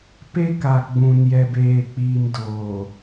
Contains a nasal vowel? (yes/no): yes